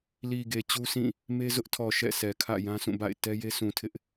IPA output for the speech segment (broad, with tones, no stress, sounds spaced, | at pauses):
l i˨ ɡ e˨ t͡ɕ u˦ s ĩ˦˨ | m e˦ z ʊ˦ ʔ tʰ ɔ˨ ʃ ɛ̰˦˨ s ɛ˨ kʰ ä̰˦˨ j ã˦ s ũ˦˨ b a̰˦˨ ɪ̯ t ɛ˦ j e˦ s ũ˨ tʰ ɪ˦ ʔ